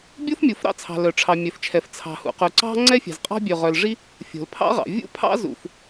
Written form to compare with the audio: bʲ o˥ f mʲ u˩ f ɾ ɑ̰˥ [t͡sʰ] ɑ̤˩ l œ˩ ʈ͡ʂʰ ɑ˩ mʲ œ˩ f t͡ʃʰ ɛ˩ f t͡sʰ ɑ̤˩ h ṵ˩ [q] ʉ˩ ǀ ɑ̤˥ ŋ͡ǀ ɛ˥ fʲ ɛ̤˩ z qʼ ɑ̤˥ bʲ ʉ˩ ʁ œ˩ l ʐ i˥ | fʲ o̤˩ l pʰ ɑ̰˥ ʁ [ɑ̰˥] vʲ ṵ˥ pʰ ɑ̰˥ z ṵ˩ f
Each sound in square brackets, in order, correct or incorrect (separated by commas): correct, correct, incorrect